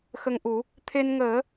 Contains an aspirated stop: yes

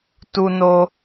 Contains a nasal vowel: no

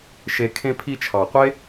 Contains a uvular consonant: yes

